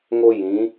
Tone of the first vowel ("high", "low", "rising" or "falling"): high